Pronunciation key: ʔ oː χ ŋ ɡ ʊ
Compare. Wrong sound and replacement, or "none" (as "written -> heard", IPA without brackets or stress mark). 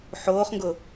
ʔ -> ħ